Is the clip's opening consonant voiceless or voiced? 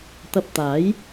voiceless